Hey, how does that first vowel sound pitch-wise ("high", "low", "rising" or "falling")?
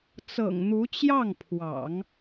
low